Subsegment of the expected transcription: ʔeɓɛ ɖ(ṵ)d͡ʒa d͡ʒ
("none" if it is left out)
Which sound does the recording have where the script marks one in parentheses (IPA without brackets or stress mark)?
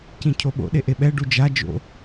u